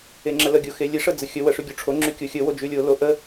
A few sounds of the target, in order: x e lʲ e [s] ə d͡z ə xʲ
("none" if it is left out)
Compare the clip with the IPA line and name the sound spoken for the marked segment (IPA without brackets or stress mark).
ʂ